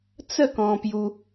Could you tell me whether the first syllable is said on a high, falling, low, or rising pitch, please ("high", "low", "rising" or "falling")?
falling